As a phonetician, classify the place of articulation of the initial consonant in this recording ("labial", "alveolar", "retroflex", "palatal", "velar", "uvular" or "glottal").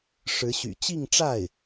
retroflex